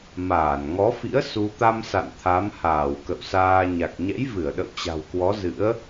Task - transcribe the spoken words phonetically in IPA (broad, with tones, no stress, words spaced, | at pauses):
maː˧˩nŋɔ˨˦fḭ˧˥ə̯ su˧ t̪a˧msa̰˧˨n t̪ʰa˨˦mhaː˧˩wkə̰˧˨wsaː˧ ɲa˨˩k̚ɲɛ̰˧˥jvɨ˧˩ə̯ɗə̰˧˨w t͡ɕa̤˨˩wkwɔ˨˦zɨ̰˧˥ə̯